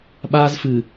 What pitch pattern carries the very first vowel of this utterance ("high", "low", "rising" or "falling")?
high